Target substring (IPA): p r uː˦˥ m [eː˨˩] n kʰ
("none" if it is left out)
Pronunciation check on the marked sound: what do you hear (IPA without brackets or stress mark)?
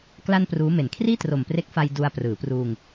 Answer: e˨˩